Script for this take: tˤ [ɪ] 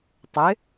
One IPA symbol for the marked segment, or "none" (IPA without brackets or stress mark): ɪ